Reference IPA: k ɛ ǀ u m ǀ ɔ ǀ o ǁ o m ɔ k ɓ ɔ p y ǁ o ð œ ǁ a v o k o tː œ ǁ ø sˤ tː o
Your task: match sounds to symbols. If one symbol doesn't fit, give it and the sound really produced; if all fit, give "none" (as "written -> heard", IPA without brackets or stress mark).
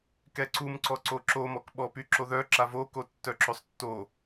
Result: none